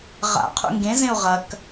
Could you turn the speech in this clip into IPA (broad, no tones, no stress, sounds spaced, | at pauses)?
ʁ a̰ qʰ ṵ ŋ ɡ ẽ z ẽ u̯ ʁ ɐ k